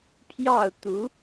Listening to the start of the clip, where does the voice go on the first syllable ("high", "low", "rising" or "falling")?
falling